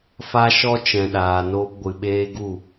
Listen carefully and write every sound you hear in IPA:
f a˦ ʃ ɔ˦ t͡ʃ ɛ̃˨ ɗ aː˨ n oː˧ p ɡʷ ɨ˨ ɓ eː˦ ɡ u˦˨

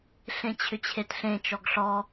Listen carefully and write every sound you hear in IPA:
ɬ ẽ t͡ɕʰ ʏ t͡ɕʰ e t ɬ ẽ t͡ʃ ɔ ɡ ɬ ɔ

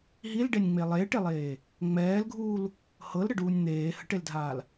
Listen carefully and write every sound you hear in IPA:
ɦ i l ɖ e nʲ ŋ͡m e lˠ eː ʈ e lˠ eː | ŋ͡m ɛː l ɡʱ uː l | h ɤ l ɾ ə ɖ uː nʲ n̪ eː h ə ʈ e l dʱ aː l

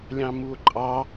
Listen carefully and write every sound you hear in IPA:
lʲ ɑ̃ m u o̯ ǃʼ ɑ

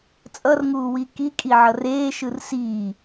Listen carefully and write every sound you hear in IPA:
t͡sʼ ʌ r ŋ uː w i k i kʼ i ʕ ʌ r eː ʃ ɯ r s iː

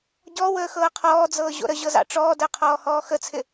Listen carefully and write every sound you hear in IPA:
ɟ ɔ w əː x ɤː qʰ ɔː d͡z ɤː ʑ o̰ ɾ ə ʑ ɤ z ɑ̰ ʈ͡ʂ ɔː d əː qʰ ɔː h ɔː x ə t͡sʰ ɪ

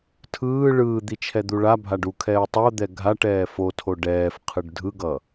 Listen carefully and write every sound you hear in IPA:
tʰ ɯː ɭ ɯː d̪ i t͡ʃʰ ɛ d̪ u ɭ a bʱ a ɖ u kʰ ɛː u̯ tˤ o d̪ ɛ ɡʱ a ʈ ɛː f o tʰ o ɖ ɛː f qʰ ɯ ɖ dʱ ɯ ɡ ʌ

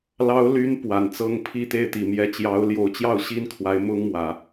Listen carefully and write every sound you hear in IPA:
l ɑ˧˥ ʊ̯ l y˧˥ n p w a˨˩ n t͡s ɤ˥ ŋ pʰ i˥˧ t̪ e˥˩ ɪ̯ t̪ i˨˩ m j ɛ˧˥ t͡ɕ j ɑ˧˥ ʊ̯ l j o˧˥ ʊ̯ t͡ɕ j ɑ˥˩ ʊ̯ ɕ i˥ n kʰ w a˧˥ ɪ̯ m ʊ˥ ŋ m w ä˨˩˦

